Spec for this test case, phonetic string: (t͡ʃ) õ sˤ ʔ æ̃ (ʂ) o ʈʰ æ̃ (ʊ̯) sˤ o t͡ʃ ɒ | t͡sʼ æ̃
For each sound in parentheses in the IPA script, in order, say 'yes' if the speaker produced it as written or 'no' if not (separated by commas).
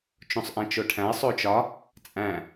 yes, no, no